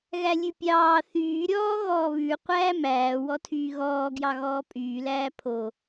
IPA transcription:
ɣ æ lʲ ʉ pʲ ɑː θ yː ɾʲ ɔː ɣ ɔː β ʉ qʷ æː m æː w ɔ tʰ yː ɣ ɔː ɡ j ɑ ɣ ɔː pʼ yː l æː pʰ o

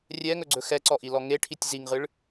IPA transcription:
rʲ ɛ ŋ ɵ ɡ͡ǀ ɵ x ɛ ǀ ɔ ʔ i l ɔ ŋ e ʈʰ i tʲ z i ŋ ʁ ɨ ɭ

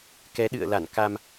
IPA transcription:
k ɛ˨˦ ɗ ɨ̰˧˨ ə̯ l a˧˩ n k a˧ m

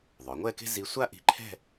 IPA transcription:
ðˤ œ˩˧ ŋʷ ɛ˥˧ k e̤˥ z i˧ sʷ a˥ ʔ i̤˧ ǃʰ ɛ̤˥˧

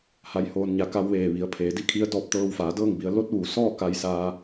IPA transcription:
h a˧˥ j h oː˧ n ɲ a˧ k a˧ w ʋ eː˧˩ ʋ i˩˧ ə̯ pʰ eː˩˧ d i˥˨ kʰ i˧˥ ə̯ d ɔː˧ p̚ t̪ ɤː˧ w f aː˩˧ d ɤː˥˨ ŋ b i˩˧ ə̯ l o˧˥ t̚ ʋ u˩˧ s ɔː˥˨ k a˧ j s aː˧

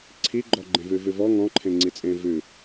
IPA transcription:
ǀʰ i ɡ͡ǃ ɔ ɡ͡ǃ ẽ v ʉ v ʉ v ɔ ŋ ɔ̃ ǃʰ ẽ ŋ͡ǀ i t͡sʼ ẽ v ʉ

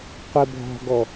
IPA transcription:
qʷ ɛ bʱ ɔ̤ ɡ ɔ

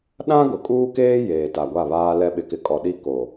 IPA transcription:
ɗ ã˦ ɡ ʊ˨ kʼ uː˦ k eː˦ j eː˨ t a˨ ɡʷ a˦˨ β aː˦ l ɛ˦ ɓ ɪ˨˦ k ɪ˨ kʼ ɔ˨ ɗ i˦ k o˨

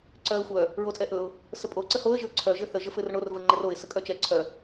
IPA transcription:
ǀ œ ə̯ xʷ œ | ɹ o tʼ ɛ ʔ ɵ ʊ̯ | s ə pʼ o ǀ ə h o ə̯ ʒ ɘ ʊ̯ ǀʰ œ ʒ ɘ θ ə ʒ ə f ɘ r ɳ o r v ə ŋ͡ǃ ə r o ɪ̯ s ə kʼ œ t͡ʃ ɛ ǀʰ œ

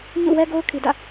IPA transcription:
ɲ ṵ˦˨ w ɛ˦ ɡ o˦ ʊ̯ kʰ i˨ d ä̰˦˨

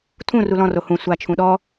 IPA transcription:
tʰ ũ r u l ɔ̃ r o h ũ sʷ a t͡ʃʰ ũ ɗ ɔ

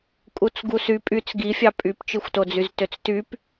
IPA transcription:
kʼ u t͡s ɡ u s y pʼ y t͡s ɡ i fʲ ɑ pʼ y p t͡ʃ ɯ xʷ t o d͡z y z t ø t͡s t y p

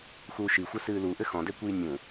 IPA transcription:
x uː ʃ i xʷ ɘ s ɨː l u ʔ ɘ x ɔ̃ d ɛ kʷ iː nʲ ũ

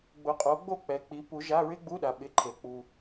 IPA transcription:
ɡ͡b ʊ˨˥ qʼ o˨˥ ɡ͡b o˥˨ k͡p ɛ˨ k͡p i˨˥ p u˨˥ ʒ a˧˥˧ ɹ ɪ˥ ɡ͡b u˧˥˧ ɗ a˨ ɓ ɪ˨˥ ǃʰ e˨ k͡p u˨

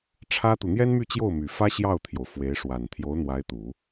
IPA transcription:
ʈ͡ʂʰ ä˥ t̪ u˨ n̪ j ɛ˥ n m y˥˧ t͡ɕ j o˥˩ ʊ̯ m y˨˩ f ä˥ ɕ j ɑ˥˩ ʊ̯ t̪ʰ j o˩ ʊ̯ f w e˧˥ ɪ̯ ʂ w a˨˩ n t̪ʰ j o˧˥ ʊ̯ n̪ w a˧˥ ɪ̯ t̪ u˨˩˦

